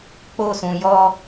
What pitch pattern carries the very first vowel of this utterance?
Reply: high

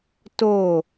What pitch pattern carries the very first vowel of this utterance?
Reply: falling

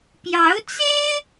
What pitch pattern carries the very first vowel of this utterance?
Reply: rising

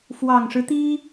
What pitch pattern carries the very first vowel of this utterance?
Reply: low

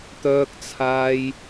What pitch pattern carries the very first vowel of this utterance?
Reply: low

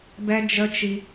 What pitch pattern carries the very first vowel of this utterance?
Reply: high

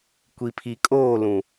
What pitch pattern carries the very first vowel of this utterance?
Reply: low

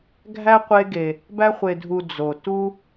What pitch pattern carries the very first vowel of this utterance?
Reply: high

